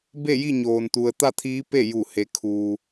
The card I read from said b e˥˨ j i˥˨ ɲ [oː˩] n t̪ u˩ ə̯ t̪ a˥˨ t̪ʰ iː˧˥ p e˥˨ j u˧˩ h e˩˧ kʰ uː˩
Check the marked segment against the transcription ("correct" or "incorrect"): correct